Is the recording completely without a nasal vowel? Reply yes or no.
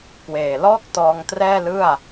yes